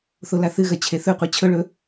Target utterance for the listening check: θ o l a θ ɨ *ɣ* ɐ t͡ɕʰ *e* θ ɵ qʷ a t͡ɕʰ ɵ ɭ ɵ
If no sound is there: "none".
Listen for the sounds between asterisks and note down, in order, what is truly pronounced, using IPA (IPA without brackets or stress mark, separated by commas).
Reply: ɣ, e